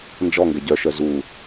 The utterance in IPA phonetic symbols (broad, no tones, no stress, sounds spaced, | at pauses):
n d͡ʒ ɔ ŋ ɡ ɛ ɟ œ ʃ œ z u